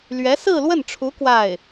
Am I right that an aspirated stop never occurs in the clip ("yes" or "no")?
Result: no